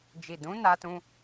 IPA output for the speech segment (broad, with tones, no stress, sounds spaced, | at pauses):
d͡ʒ i˨ d ũ˨˦ n a˦ t ũ˦